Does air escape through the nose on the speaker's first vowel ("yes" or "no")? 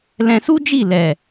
yes